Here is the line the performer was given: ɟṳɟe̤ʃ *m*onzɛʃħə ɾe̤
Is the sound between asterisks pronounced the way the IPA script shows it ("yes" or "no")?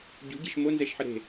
yes